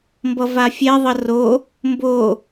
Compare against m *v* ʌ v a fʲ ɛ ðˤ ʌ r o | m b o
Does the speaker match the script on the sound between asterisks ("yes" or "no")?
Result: no